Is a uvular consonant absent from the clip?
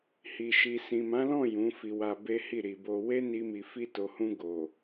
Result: yes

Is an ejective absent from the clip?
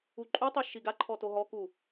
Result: no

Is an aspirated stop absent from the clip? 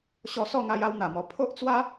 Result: no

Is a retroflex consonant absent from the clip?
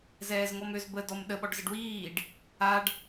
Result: no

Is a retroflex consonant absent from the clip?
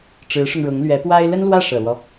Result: no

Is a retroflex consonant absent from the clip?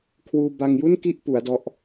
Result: yes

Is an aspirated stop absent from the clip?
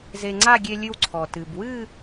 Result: no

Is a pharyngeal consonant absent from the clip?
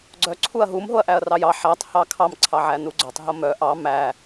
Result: no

